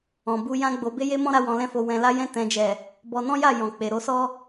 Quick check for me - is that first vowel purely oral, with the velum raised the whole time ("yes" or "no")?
no